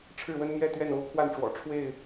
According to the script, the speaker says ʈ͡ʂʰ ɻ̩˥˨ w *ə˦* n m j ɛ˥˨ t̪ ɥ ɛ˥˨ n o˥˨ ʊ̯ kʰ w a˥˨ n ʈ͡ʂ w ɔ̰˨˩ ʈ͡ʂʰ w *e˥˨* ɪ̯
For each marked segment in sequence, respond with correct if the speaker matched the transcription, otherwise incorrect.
correct, correct

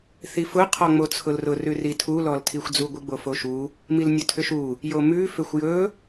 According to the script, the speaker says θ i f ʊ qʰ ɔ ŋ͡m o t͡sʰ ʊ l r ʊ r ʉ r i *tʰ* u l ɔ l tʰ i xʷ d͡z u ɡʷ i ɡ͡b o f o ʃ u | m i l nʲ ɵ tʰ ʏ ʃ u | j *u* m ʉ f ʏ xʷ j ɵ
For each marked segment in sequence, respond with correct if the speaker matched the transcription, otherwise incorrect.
correct, incorrect: o

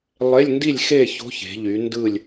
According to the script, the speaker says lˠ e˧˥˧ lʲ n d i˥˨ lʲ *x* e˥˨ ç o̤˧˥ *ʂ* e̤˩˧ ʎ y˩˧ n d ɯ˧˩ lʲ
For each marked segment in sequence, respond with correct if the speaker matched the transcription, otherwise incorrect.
correct, incorrect: ç

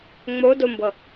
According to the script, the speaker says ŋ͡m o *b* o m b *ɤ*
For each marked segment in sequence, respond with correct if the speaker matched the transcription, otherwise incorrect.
incorrect: d, correct

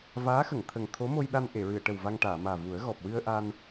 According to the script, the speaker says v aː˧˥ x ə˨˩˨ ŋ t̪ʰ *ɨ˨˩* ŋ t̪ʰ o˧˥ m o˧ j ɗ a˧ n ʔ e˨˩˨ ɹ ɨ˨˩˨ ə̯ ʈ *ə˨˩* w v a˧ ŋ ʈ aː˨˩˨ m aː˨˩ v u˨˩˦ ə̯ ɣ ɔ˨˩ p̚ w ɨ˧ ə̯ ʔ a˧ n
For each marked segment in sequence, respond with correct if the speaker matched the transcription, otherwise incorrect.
incorrect: ə˨˩, correct

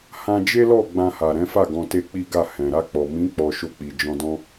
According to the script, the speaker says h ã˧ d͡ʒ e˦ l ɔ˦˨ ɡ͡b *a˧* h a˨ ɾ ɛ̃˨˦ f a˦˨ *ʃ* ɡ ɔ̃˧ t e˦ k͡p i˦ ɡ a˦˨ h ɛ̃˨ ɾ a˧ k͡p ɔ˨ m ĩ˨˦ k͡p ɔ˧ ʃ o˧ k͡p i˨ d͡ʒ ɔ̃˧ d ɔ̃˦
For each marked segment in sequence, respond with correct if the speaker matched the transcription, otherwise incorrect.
incorrect: ã˧, incorrect: none

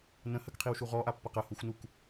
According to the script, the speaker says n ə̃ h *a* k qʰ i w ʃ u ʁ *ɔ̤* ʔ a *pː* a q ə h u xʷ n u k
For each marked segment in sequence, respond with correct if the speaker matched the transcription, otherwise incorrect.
incorrect: ə, incorrect: ɔ, correct

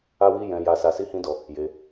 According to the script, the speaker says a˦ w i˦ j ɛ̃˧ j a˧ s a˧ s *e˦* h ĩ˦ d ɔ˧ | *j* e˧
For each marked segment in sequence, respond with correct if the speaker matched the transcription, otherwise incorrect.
incorrect: i˦, correct

